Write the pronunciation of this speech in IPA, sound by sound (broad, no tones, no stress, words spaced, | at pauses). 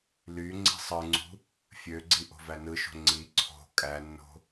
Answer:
ly ŋ͡ǀi̤sˤɯŋ͡ǀṳ | fʲøɡ͡ǀi ʔo̤vænɯʃo̤ ŋ͡ǀi ǀʰo̤ kʼænːo̤